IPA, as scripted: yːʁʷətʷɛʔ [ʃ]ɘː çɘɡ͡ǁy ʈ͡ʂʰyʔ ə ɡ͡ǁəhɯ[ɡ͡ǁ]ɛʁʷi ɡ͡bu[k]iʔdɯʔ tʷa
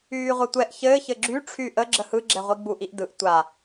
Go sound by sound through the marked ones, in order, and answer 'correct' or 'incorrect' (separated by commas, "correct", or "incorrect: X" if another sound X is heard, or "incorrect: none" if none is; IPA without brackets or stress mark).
incorrect: ç, correct, incorrect: ʔ